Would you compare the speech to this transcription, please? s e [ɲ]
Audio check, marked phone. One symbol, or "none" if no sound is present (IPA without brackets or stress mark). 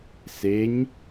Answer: ɲ